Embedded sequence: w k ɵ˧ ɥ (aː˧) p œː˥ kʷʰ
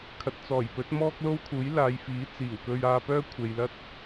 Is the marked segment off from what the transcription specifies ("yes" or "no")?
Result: no